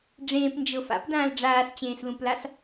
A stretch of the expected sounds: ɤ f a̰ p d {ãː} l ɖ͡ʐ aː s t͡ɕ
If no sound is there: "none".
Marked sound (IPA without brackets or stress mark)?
ãː